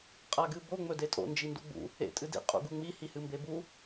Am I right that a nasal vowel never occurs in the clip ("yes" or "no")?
yes